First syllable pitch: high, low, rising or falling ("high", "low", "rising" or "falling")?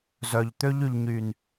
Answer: low